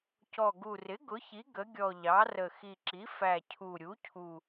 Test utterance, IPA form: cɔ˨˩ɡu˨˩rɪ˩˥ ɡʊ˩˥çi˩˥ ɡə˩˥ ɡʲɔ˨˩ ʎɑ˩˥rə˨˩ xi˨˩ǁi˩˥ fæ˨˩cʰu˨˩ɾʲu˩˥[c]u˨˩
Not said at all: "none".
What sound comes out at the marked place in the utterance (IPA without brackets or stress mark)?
cʰ